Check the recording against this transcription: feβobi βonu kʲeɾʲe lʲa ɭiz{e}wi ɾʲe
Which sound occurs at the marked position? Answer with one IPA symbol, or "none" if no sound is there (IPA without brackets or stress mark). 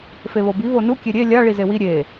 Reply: e